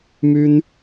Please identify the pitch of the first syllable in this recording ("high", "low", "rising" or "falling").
high